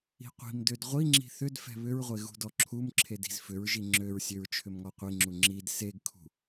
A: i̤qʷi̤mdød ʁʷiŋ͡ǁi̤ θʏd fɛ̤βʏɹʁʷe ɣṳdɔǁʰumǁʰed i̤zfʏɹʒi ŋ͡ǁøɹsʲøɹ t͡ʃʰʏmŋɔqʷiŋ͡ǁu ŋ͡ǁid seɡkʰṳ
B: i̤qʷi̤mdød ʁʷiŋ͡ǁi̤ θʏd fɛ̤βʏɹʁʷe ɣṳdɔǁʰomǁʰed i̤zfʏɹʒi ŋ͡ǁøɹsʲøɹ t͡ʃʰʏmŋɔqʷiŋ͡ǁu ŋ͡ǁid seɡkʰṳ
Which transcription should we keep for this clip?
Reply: A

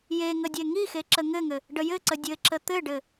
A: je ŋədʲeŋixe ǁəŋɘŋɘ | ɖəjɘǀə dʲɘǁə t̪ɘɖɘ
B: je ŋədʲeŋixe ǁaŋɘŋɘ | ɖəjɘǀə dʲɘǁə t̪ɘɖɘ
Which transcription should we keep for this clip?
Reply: A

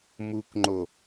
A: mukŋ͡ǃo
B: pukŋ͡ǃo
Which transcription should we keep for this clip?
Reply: A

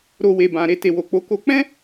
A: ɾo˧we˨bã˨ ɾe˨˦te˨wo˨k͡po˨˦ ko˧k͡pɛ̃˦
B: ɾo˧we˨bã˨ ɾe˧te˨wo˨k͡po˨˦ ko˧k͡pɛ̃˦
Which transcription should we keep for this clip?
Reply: B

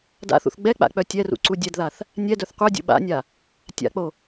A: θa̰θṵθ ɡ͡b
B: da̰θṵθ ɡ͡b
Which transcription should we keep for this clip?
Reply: B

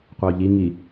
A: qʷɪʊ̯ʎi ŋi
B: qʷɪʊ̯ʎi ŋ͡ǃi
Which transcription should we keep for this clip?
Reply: A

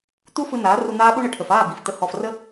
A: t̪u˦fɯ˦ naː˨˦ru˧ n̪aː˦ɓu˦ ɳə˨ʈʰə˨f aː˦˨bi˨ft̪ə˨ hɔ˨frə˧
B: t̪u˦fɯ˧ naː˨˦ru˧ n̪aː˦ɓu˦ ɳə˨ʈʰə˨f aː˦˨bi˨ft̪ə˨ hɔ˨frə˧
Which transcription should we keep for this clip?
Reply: B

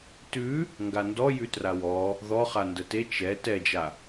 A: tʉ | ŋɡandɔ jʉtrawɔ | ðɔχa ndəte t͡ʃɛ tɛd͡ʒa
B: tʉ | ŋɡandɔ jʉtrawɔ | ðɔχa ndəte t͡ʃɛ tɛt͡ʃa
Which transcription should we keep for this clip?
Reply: A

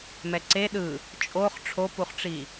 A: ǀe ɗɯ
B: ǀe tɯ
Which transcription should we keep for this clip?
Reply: A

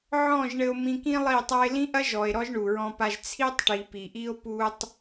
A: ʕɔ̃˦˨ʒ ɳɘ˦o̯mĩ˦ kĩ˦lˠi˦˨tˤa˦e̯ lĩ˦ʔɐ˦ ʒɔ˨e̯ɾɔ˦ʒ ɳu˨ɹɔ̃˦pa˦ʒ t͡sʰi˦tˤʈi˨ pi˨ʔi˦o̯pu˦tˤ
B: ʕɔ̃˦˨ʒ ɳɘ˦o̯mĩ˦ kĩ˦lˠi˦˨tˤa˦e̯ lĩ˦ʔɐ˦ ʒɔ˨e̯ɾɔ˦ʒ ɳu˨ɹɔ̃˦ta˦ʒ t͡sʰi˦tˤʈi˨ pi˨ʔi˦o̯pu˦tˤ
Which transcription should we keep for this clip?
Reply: A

